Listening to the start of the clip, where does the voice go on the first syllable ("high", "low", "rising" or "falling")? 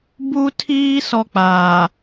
high